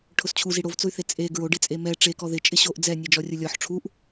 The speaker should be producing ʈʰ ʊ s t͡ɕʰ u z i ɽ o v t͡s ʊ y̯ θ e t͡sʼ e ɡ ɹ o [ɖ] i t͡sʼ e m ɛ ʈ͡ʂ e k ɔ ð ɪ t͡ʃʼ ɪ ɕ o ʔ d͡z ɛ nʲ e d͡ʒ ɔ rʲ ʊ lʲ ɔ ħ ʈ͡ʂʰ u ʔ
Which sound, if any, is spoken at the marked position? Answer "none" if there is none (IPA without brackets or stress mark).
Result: ɖ